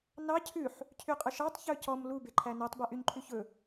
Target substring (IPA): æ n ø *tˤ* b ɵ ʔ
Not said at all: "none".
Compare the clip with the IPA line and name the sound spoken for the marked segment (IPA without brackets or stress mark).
tˤ